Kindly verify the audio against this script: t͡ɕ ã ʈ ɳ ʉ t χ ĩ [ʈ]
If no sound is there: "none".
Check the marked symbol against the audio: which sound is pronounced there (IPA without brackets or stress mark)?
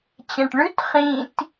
t